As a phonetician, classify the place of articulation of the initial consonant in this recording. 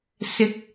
alveolar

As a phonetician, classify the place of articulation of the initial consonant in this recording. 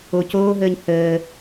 palatal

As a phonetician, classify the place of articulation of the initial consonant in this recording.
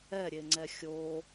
alveolar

